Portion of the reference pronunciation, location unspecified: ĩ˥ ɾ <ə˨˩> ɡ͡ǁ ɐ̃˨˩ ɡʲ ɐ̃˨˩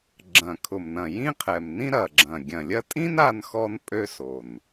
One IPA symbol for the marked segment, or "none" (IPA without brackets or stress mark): ɐ˨˩